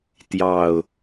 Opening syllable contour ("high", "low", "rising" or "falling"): low